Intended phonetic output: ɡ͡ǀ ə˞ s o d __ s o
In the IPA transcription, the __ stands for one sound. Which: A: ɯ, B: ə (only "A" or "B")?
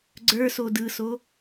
A